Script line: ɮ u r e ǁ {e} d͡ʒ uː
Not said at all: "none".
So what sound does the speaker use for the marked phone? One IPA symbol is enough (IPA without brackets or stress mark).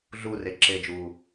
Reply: e